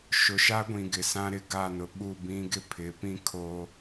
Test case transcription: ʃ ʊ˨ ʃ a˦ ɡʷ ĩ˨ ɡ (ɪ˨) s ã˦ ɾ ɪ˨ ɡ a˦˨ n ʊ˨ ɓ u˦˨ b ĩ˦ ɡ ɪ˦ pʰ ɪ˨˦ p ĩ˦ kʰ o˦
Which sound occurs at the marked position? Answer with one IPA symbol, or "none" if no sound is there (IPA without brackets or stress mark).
ɪ˨